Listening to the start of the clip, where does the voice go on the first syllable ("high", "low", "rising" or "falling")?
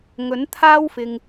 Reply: rising